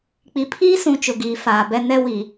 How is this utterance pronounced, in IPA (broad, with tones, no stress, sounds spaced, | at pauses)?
k͡p i˨ pʰ iː˦ s ũ˨ t͡ʃ ʊ˨ ɡ iː˨ f aː˨ b ɛ˦ n ɛ˦ w i˨